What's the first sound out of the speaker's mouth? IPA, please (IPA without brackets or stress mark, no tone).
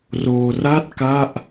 r